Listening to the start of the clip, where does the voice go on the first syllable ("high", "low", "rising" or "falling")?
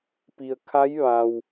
low